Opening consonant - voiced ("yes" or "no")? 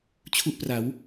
no